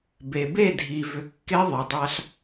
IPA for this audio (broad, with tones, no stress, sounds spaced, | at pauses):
b e˨ b e˦˨ dʱ i˨ v ʏ˨ kː e˦ ðˤ i˨ dˤ a˦ ɬ